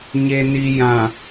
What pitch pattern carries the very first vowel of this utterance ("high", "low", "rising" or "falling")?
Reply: low